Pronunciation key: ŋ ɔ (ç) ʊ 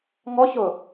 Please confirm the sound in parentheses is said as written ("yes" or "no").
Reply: yes